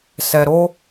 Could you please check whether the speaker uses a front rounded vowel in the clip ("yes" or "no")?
no